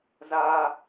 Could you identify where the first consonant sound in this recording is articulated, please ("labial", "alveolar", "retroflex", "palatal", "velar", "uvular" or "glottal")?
alveolar